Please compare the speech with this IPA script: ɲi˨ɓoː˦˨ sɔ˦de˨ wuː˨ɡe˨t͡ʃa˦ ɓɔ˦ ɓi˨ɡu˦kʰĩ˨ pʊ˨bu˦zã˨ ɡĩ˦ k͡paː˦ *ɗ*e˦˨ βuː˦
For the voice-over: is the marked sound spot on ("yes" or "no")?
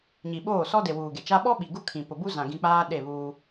yes